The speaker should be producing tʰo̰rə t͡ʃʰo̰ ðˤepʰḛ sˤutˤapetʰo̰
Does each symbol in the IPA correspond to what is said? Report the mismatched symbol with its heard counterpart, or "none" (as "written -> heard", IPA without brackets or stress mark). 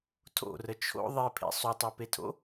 none